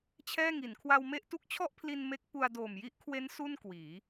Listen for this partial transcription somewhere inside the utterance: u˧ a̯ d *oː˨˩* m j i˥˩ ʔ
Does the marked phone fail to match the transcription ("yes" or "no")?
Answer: no